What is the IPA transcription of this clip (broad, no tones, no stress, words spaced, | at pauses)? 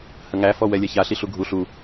həŋæ fɔwɛlʲɛça ɬiɬuɡʱu ɬu